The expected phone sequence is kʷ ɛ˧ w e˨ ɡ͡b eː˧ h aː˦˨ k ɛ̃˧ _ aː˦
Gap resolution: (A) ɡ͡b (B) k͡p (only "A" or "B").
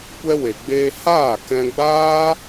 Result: A